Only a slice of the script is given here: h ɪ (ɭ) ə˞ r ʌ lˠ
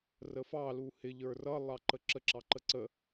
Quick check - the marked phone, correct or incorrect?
incorrect